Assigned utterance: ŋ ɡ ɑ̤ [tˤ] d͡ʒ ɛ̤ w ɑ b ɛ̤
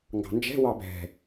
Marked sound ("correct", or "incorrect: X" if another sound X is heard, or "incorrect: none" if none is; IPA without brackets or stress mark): incorrect: n